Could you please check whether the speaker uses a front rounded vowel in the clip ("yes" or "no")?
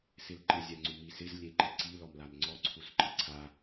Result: no